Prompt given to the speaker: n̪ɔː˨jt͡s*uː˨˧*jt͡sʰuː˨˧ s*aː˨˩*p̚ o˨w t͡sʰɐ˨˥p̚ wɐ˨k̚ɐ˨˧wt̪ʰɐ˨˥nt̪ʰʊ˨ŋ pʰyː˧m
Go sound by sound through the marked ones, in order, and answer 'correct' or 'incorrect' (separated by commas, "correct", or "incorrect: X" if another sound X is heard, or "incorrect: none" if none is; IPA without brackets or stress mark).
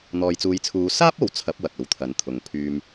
correct, incorrect: aː˥